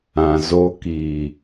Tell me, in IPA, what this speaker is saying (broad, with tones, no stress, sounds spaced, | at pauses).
ã˨ z o˧ k iː˨